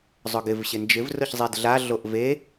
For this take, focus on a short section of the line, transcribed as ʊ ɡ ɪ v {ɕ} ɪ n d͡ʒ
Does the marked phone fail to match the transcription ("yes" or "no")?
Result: no